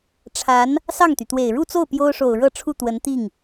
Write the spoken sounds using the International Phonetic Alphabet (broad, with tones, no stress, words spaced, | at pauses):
ʈ͡ʂʰa˧˥n | sɑ˥˩ŋt̪y˩t̪we˨˩ɪ̯ ɻu˥˧t͡so˥˩ʊ̯ pjo˥ʊ̯ʂo˨˩ʊ̯ ɻɤ˥˧ ʈ͡ʂʰu˥˩t̪wə˧˥n t̪i˥˩ŋ